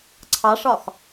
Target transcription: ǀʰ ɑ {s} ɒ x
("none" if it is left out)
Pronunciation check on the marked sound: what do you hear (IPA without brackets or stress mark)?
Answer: ʂ